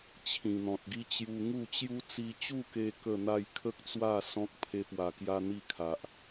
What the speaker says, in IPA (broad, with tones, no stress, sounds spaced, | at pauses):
t͡ɕʰ ĩ˨˩ n̪ ɔ̃˨ t̚ ɡ i˦ t͡ɕ j u˧ ŋ u˥˧ t͡ɕ j u˦ t͡s i˧ t͡ɕ u˥˧ k e˧ k ə˥˧ n̪ a˥˧ j kʰ ə˦ k̚ t͡s w a˥˧ s ɔ̃˦ k̚ pʰ e˧ p w a˨˩ k j a˧ n̪ i˥˧ kʰ a˨ ʔ